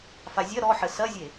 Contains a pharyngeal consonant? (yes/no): yes